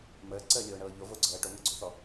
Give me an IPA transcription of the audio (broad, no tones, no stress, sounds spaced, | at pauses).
m əː ǀ əː lʲ oː ɳ ɤː ʎ o v o ɡ͡ǀ ɤː ʈ o ŋ əː ɡ͡ǀ o θ ɔ